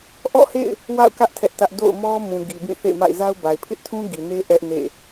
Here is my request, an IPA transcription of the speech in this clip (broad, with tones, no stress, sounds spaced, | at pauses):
ʔ ɔ̰˦˨ h ḛ˦˨ ɪ̯ | w a̰˦˨ ʊ̯ k ä˦ ʔ tʰ ɛ˦ ʔ t ä˦ ʔ d o̰˦˨ ʊ̯ m ɔ˦ m ũ˨ ɡ i˨ b ĩ˦˨ θ ḛ˦˨ ɪ̯ m a̰˦˨ ɪ̯ z a˦ ʊ̯ b a˨ ɪ̯ pʰ ɪ˦ ʔ tʰ ũ˦ ɡ i˨ n e˦ ʔ ɛ˦ ʔ n ḛ˦˨